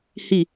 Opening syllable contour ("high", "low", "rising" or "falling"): falling